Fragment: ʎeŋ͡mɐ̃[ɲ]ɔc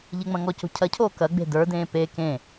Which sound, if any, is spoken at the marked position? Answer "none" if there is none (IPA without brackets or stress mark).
ŋ